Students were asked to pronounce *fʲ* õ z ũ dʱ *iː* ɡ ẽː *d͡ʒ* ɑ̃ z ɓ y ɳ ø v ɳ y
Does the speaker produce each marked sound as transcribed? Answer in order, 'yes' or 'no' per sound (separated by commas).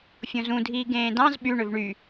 yes, yes, no